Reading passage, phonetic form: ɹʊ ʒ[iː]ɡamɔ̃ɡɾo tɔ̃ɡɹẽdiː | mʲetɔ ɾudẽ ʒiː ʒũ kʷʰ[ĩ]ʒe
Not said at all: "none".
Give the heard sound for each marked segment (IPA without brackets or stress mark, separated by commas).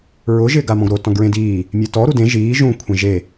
ɪː, ẽ